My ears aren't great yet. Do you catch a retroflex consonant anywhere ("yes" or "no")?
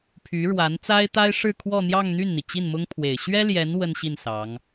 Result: yes